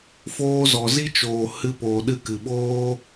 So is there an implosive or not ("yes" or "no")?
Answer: yes